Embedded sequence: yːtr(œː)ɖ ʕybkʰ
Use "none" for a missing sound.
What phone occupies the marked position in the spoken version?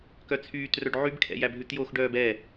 œ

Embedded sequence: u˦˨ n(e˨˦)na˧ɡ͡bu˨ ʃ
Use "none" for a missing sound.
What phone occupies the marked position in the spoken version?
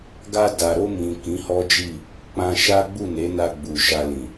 e˨˦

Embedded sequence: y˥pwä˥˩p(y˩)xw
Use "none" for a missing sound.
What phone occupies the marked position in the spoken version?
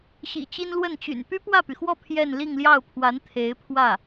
y˩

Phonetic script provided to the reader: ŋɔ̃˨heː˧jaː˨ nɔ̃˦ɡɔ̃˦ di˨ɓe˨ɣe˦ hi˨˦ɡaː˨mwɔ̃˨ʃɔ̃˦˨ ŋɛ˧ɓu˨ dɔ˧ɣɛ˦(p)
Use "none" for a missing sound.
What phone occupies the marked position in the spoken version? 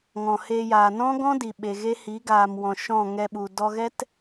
t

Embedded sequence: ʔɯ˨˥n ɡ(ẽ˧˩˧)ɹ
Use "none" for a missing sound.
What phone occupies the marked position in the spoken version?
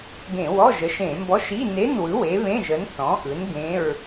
ẽ˧˥˧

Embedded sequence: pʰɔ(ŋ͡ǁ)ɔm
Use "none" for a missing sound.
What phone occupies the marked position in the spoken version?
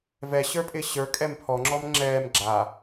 ŋ͡ǁ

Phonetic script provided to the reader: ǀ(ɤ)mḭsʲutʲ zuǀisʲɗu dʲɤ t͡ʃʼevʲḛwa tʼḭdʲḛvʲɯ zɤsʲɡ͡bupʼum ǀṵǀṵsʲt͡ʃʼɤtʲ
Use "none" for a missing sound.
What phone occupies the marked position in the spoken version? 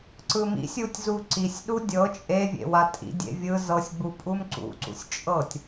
ɯ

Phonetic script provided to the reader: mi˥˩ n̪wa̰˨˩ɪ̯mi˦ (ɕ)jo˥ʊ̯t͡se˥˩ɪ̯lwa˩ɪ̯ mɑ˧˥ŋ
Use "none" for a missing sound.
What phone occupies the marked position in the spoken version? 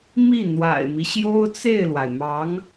ɕ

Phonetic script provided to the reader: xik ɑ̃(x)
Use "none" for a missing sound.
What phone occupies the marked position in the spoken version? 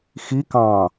none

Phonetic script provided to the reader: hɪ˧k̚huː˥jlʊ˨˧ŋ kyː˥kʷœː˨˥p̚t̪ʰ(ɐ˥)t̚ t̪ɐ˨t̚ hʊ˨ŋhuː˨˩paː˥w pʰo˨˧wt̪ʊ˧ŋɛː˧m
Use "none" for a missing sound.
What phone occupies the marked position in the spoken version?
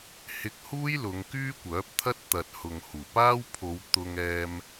ɐ˥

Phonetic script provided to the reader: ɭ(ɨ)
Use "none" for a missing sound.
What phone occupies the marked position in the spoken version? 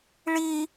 i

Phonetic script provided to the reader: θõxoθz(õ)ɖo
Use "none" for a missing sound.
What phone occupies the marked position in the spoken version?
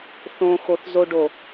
o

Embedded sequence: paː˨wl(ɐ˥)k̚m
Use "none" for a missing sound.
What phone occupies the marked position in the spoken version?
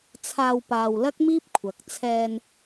ɐ˥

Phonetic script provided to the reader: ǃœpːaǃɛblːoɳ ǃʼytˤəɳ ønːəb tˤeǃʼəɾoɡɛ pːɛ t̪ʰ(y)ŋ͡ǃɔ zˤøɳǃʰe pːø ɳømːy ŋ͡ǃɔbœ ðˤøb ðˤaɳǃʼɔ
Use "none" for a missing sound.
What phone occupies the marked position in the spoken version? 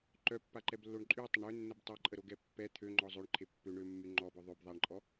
ø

